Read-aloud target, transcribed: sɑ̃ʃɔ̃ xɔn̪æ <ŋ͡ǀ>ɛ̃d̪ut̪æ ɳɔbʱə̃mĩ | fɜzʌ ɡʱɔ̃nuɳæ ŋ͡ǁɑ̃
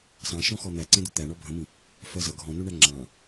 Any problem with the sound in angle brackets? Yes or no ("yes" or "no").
yes